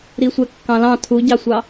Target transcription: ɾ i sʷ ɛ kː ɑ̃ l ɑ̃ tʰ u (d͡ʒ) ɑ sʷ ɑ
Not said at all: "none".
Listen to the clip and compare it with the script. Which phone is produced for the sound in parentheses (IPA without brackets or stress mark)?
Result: ɟ